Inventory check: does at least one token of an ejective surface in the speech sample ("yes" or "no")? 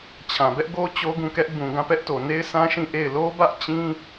no